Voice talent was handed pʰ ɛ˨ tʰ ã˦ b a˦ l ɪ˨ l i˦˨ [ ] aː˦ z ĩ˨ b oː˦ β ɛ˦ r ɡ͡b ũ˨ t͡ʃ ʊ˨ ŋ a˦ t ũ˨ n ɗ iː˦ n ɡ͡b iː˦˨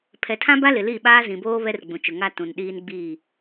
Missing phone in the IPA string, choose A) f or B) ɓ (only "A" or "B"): B